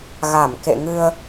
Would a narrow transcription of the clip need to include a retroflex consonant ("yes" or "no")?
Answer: no